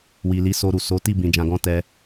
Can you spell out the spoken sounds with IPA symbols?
w i˨ l i˨˦ s o˧ ɾ u˨ s o˨˦ t i˦˨ b ĩ˧ d͡ʒ ã˧ ɡ ɔ̃˦ t ɛ˧

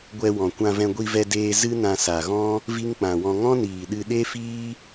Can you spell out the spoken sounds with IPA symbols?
ɡʷ ɛ˧ w ɔ̃˨ kʷ ã˧ v ɛ̃˧ ɡʷ i˧ v ɛ˧ d eː˧ z ɨ˦ n ã˧ s a˨ ɣ ɔ̃˦ | v i˦ ŋ k͡p ã˨ w ɔ̃˧ ŋ ɔ̃˦ n iː˨ ɗ ɨ˧ ɗ e˦ f iː˦

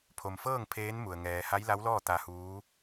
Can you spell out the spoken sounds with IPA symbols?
pʰ o˩ m f ɤː˥˨ ŋ pʰ eː˧˥ n m u˩ ə̯ ŋ ɛː˩ h a˧˥ j l a˧˥ w l ɔː˥˨ t̪ a˧ h uː˧˥

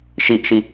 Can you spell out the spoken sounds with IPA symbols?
ʃ i ʔ ʃ i

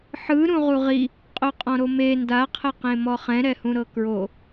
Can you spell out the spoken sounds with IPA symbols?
ħ ɯ ɾ ũ ʁ u ʁ i | qʼ o qʼ ɔ̃ ɾ o m e n d a qʰ ɛ q ẽ m ɔ χ ɛ̃ ɾ ɛ h ũ ɾ ɤ k ɹ o

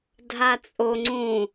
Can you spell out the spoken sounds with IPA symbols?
dʱ a t͡sʼ o ŋ͡ǀ ũ

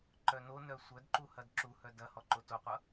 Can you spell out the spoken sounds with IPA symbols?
ǃ œ n o n œ sʷ œ d ǃ u h ɐ d ǁ u h œ d ɐ h ɔ ǃ o t o qʷ ʌ

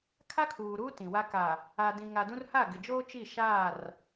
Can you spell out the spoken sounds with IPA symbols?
kʰ a˦ kʰ uː˨ ɾ uː˦ t ĩ˨ w a˦ k a˨ | a˨ d ĩ˨ ŋ a˨ d ũ˦ r h a˦˨ ɡ ɪ˨ d͡ʒ oː˦ t͡ʃ i˦˨ ʃ aː˦˨ r

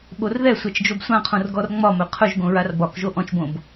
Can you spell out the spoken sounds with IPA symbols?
ɓ o r ð ɛ sʷ ɛ t͡ʃ d͡ʒ o b sʷ ã qʰ õ r ɡ ɔ r ŋ͡m ɒ m ɵ qʰ ɵ ʒ ɡ õ ɹ a r b ɒ k ʒ o ʔ ɔ̃ t͡ʃ b õ b

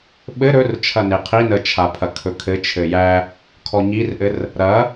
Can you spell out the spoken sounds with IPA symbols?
ɓ ɘ ɾ ɵ r t͡ʃʰ ɐ n e qʰ i n ə t͡ʃʰ a pʰ ɐ kʰ ɵ kʰ ɘ t͡ʃʰ ɘ j æ | kʰ ɔ ɲ i r ʔ ɘ r | ɾ ɐ

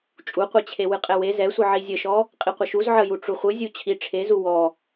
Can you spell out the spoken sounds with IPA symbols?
t͡ʃʼ u qʷ ɛ t͡ɕʰ e w ɨ qʼ ɛ w e z ɛ sʷ ɨ ʕ i zʲ ə ʃ ɔ | qʼ i qʷ ə ʃ u z ʕ ə j u ʈ͡ʂ u χʷ ɨ zʲ u t͡ɕʰ i ʈ͡ʂʰ e z u w ɔ

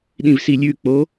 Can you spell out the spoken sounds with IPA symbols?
ɗ ĩ v s i lʲ ʉ k͡p o

